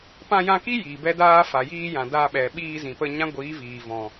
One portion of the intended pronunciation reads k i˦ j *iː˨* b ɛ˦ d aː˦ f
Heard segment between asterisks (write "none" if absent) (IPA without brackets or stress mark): iː˨